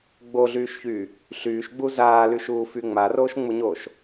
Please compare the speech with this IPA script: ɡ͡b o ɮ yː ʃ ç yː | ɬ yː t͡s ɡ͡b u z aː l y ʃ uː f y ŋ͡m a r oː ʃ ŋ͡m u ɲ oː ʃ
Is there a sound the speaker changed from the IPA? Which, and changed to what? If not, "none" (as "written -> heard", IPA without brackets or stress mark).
t͡s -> ʃ